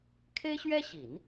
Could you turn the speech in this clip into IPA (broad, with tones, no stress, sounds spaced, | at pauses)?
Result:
kʰ e˥ ɪ̯ ɕ ɥ ɛ˥ ɕ i˨˩˦ n